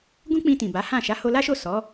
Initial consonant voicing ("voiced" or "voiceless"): voiced